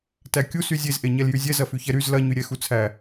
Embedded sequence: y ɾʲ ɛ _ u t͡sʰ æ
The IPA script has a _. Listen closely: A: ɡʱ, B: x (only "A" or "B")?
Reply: B